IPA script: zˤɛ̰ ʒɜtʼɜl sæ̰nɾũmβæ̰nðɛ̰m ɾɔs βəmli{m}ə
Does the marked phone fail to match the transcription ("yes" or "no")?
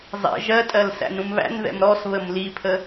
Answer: yes